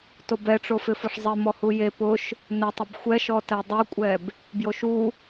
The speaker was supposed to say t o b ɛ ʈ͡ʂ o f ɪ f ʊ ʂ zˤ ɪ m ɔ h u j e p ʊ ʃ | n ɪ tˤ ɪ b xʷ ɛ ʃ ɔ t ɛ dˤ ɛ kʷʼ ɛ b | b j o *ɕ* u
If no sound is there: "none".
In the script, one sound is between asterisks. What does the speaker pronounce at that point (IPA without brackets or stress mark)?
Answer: ʃ